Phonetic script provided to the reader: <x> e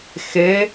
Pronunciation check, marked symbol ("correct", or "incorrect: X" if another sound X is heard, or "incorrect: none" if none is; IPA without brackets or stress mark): correct